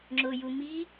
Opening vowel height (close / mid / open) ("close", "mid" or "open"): close